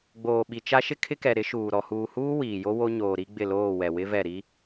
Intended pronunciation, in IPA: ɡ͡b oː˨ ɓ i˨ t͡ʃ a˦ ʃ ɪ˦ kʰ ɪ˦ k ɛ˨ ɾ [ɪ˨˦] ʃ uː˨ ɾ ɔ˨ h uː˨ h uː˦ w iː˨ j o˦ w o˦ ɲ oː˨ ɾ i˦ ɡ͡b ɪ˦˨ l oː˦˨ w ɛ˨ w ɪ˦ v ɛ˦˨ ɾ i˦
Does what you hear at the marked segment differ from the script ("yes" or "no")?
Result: no